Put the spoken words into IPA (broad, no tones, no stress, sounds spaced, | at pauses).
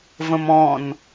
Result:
v ə̃ m ɔ̃ n